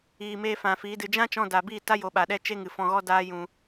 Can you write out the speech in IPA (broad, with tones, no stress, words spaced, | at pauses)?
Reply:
iː˨meː˧ fã˨ fiː˨˦dɨ˧ d͡ʒã˦t͡ʃɔ̃˧ da˨biː˦˨ta˦ jo˧ɓa˧ɗɛ˦ t͡ʃe˦ŋɨ˨fɔ̃˧ɣɔ˦ daː˦jũ˧